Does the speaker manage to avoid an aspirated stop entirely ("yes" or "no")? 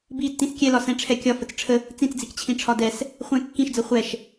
no